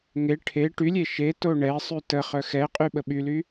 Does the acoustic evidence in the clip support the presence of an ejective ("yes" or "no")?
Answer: yes